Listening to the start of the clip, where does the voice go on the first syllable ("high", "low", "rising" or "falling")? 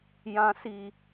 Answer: low